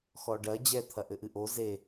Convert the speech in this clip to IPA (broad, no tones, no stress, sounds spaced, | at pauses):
x ɔ ɖ ɐ d͡ʑ ɛ t̪ʰ ɐ ʔ ɘ ʔ ɨ ʔ o z e